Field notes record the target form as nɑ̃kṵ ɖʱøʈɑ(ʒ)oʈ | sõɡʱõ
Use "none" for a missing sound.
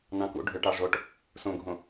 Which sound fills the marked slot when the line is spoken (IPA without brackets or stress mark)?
ʐ